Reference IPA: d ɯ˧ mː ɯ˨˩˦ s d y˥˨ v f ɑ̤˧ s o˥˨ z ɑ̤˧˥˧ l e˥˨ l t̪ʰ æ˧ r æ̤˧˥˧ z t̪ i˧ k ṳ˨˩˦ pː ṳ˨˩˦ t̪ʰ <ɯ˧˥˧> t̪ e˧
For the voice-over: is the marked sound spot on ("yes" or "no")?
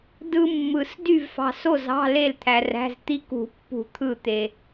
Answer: no